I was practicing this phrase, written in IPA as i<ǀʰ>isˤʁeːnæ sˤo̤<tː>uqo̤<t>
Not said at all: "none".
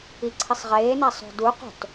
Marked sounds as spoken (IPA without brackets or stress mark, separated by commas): ǀʰ, d, t